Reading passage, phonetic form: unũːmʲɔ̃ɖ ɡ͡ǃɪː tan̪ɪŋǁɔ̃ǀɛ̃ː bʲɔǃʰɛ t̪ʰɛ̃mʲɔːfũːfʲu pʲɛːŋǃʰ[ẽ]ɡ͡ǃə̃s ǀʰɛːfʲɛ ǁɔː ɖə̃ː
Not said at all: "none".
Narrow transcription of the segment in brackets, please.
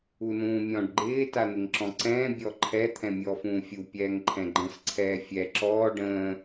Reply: ɛ̃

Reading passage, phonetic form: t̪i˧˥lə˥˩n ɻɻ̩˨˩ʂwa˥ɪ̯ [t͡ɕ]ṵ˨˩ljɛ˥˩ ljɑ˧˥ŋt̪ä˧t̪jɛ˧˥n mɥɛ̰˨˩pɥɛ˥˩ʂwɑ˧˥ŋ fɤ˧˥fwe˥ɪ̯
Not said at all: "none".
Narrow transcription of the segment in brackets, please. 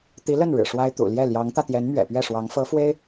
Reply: t̪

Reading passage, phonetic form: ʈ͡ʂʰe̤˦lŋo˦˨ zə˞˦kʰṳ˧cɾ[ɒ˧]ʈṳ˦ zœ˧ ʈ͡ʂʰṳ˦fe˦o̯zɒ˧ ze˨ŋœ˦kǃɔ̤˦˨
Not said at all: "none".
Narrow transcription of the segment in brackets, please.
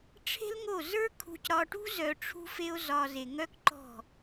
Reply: ɒ˧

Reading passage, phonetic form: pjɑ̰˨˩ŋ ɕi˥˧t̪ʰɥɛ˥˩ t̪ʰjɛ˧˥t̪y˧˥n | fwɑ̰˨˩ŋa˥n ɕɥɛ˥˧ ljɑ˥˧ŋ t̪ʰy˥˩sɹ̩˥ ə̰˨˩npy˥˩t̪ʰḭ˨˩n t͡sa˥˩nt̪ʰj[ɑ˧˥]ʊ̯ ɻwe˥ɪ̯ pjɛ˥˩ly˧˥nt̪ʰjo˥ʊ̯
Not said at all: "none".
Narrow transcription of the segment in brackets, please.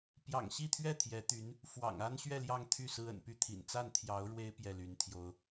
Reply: ɑ˧˥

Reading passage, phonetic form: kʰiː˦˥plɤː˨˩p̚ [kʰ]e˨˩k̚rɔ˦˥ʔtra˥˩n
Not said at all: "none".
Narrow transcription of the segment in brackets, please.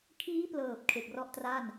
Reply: kʰ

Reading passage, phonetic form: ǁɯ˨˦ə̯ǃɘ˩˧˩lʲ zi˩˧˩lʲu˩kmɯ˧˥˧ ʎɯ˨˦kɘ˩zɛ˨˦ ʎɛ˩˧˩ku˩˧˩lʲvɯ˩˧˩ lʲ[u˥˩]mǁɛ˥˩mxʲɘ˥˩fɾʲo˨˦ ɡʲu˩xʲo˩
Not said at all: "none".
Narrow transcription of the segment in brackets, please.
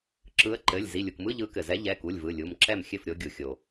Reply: u˩˧˩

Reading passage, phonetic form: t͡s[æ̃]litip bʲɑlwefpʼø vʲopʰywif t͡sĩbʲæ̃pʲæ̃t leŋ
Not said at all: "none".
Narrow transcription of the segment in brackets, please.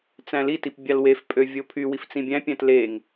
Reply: æ̃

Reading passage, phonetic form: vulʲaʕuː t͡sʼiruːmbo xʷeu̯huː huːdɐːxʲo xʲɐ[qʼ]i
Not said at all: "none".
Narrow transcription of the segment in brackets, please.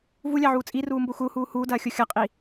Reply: qʼ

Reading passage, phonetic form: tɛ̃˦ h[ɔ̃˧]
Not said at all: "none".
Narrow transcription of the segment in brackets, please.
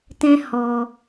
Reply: ɔ˧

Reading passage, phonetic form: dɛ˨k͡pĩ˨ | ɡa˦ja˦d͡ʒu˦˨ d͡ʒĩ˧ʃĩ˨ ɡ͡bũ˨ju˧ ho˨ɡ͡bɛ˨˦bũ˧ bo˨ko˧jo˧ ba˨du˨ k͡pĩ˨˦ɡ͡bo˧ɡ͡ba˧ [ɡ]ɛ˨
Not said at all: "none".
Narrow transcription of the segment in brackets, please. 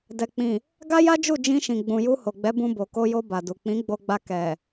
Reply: k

